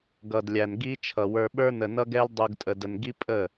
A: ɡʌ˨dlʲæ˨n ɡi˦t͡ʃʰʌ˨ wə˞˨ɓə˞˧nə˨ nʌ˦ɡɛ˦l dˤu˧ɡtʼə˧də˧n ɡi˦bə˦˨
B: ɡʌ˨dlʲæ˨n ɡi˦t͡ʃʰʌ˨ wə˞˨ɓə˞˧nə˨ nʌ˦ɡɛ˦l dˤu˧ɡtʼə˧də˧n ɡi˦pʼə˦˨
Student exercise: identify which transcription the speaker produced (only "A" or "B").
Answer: B